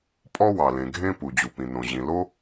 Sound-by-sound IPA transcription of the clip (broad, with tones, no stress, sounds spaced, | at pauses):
pʼ ɔ˥ w ɑ˩ l ẽ˩ ɡʱ ẽ˥ p u˩ d͡ʑ u˩ p ĩ˩ n õ˩ ʑ ĩ˩ l o˥